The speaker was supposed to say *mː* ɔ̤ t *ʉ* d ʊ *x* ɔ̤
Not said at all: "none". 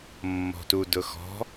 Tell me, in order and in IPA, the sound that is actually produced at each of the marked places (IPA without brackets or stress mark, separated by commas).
mː, u, x